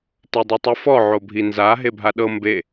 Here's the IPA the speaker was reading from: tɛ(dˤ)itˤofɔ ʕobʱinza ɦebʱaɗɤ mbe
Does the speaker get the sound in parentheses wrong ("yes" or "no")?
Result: no